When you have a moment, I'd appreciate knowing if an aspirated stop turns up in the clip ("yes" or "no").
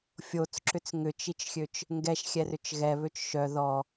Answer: no